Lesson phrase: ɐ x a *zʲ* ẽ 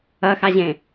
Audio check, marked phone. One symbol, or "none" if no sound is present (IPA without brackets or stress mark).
ʑ